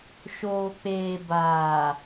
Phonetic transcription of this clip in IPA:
ʃ oː˨ k͡p eː˨ b aː˨

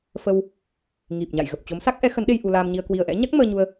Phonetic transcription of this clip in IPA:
f ə˧ w | ŋ i˨˩ p̚ ɲ a̰˧˨ j ɣ ə˨˩ p̚ t͡ɕ o˨˦ m s a˦˥ k̚ ʔ ɛ˨˦ x ə˨˦ n ɗ e˧ j ʔ u˧ l aː˧ m ɲ i˧ ə̯ k w i˧ ə̯ ʔ ɛ̰˧˥ ɲ a˦˥ k̚ m əː˧ ɲ u˧ ə̯

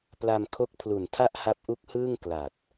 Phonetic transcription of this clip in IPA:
p l a˧ m kʰ o˦˥ k̚ pʰ l u˨˩ n tʰ a˥˩ ʔ h a˦˥ p̚ ʔ u˦˥ k̚ h ɯː˥˩ ŋ k l a˨˩ t̚

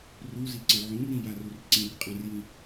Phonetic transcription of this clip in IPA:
r u z i ǀ ə̃ ʕ ũ r ĩ j a r u r ǀ ĩ r qʼ ã r j ĩ

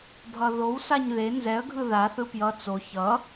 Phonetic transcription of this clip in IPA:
bʱ ʌ ð o w s a ɲ ð e n z ɛ ə̯ ɡʱ ɯ ð a θ ɯ p j ʌ t͡s o ç ʌ

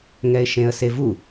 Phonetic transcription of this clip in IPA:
ŋ ɛ ɪ̯ ʃ ẽ ə̯ s e v u

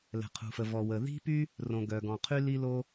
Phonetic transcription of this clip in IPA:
l ɛ̤˩ qʰ ṳ˩ f ə˩ v ɔ˩ w ə˩ ð i̤˥ p y˥ | r õ˩ ɡ œ˩ ɡ ɔ̃˩ qʰ y˥ l i˥ l o˥

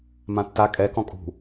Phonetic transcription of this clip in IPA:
m ã tː a kʼ ɛ k ɔ̃ kʼ ṳ

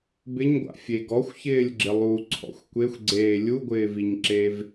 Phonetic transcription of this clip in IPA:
b ɪ ɲ ɡʷ a̰ fʲ e ɡ ɔ xʷ ç ɪː lʲ ɡ͡ǁ ɪ lˠ u ǀʰ ɔ̰ xʷ kʷ e xʷ ɡ͡ǀ eː lʲ u ɡʷ ɪː v i ɲ ǁ e v

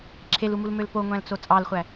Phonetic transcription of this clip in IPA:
ǁʰ e l u m u l m ø l p o ŋʷ æ̃ l t͡s o t͡sʼ ɑ l χʷ æ

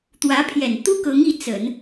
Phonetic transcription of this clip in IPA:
t̪ w ä˧˥ pʰ j ɛ˨˩ n t̪ u˥ k ɤ˧˥ ŋ i˧˥ t͡s ə˨˩˦ n

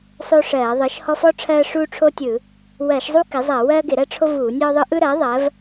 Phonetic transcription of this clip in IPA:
sˤ o˥ ʂ ɜː˧˩˧ ðˤ ɯ˩˥ ʃ h ɔ˥ f ɔ˥ ʈ͡ʂʰ ɜː˥ ʂ uː˥ ʈ͡ʂʰ o˥ tʲ ɯ˧˩˧ | w ɜ˧˩˧ ʃ zˤ u˥ k ɪ˩˥ zˤ ɜ˧˩˧ w ɜː˥ ɡ ɪ˧˩˧ ɾ ɜ˥ ʈ͡ʂʰ o˥ v uː˧˩˧ nʲ ɔ˥ ðˤ ɯ˥ ʔ ɯ˥ ɾ ɜ˩˥ ðˤ ɜ˩˥ v

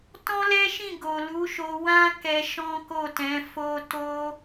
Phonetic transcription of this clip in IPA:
t ɔ̃˦ l ɛ˦ ʃ ĩ˦˨ ɡ o˨ l u˨˦ ʃ o˧ w ã˦ k ɛ˧ ʃ ɔ̃˦ k o˦˨ t ɛ̃˨˦ f o˦ t o˦

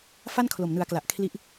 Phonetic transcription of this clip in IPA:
f a˥˩ n kʰ l o˨˩ m n ɯ˩˦ a̯ k l a˨˩ ʔ kʰ l i˦˥ ʔ

